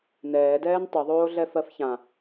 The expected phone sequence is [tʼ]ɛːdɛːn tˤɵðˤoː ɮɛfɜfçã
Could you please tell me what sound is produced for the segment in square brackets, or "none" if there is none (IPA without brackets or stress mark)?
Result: n